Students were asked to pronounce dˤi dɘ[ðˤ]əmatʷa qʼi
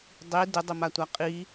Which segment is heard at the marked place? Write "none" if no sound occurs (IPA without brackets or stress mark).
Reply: dˤ